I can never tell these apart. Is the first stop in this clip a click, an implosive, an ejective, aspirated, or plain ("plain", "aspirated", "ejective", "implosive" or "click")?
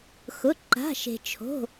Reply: click